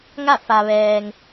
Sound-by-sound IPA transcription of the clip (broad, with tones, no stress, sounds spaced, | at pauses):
ŋ a˥˨ f a˧ ʋ ɛː˧ ŋ